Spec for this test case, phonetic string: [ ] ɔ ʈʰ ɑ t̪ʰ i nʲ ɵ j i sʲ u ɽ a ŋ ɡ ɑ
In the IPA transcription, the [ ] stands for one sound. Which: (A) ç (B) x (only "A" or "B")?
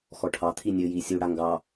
B